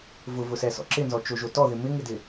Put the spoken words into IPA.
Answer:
vʊvʊsɛsɔ̰ ǁɪnzɔt͡ʃoʒo tɔðɪ mɪŋɪdɪ

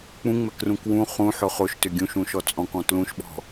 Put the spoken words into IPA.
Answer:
k͡pũŋ͡mɛkrũ kwũ χũħʊ χoʃtʏ ɡʲũʃũʃɔ t͡sʼɔ̃kɔ̃ tlũʃɓɔ̤

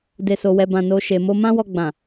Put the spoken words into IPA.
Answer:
de˨so˨wɛ˨ bã˨ no˨ ʃe˨mo˧ mã˦wɔ˧ɡ͡bã˨

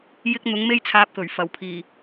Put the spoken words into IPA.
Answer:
jɪ˥k̚ n̪ʊ˨˥ŋme˥jt͡sʰaː˧p̚kɵ˨˩ɥ fɐ˨˩wpʰiː˨˩

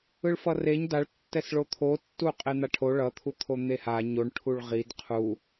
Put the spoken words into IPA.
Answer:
ɯɭfʌreɲ daɭtːɛsɭo t̪ʰotːu qʼen̪aʈʰo ɭʌt̪ʰu t̪ʰon̪eha ɲoɳʈʰuɭ ʁid qʰu

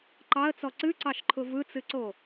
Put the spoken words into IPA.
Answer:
ǃɑə̯t͡sɔ ǀɨǀɑʃǃʰʊ vɯt͡sɨǀo

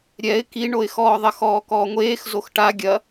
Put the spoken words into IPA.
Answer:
ɾʲɛɪ̯ kiɳoɪ̯xɔː ðˤɐxɔːkɔːŋʷeːx zoxʈa ɡʲɐ

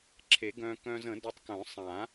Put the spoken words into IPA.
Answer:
ǁʰe˨˩˦ɡœ̃ː˧ kœ̃ː˧zə̃˨˩˦ dœ˧tˤ kœ̃˨˩˦sˤã˨˩˦

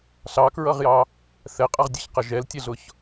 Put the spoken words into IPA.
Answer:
ɬɑkɹʌʁjɑ | θɛqʼʌʁdʲɛçqʌ ʒɛltʲɛɮʊç

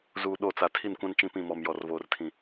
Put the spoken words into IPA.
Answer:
zuː˨ ɗo˦˨t͡sa˨ tʰi˦˨nkʷã˦n t͡ʃĩ˦pĩ˦˨ mɔ˨mjɔ˨rvoː˨rtʰĩ˨

